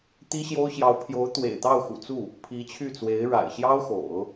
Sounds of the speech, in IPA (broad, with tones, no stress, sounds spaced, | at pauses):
t̪ i˥ ɕ j o˥ ʊ̯ ɕ j ɑ˧˥ ʊ̯ pʰ j o˧˥ ʊ̯ t̪ w ḛ˨˩ ɪ̯ t̪ ɑ˥˩ ʊ̯ x ṵ˨˩ t͡s u˥˩ | pʰ i˧˥ t͡ɕʰ y˥˩ t͡s w e˧˥ ɪ̯ ɻ a̰˨˩ ɪ̯ ɕ j ɑ˥ ʊ̯ x o̰˨˩˦ ʊ̯